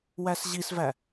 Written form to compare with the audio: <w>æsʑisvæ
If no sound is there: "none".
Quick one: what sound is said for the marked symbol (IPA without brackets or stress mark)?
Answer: w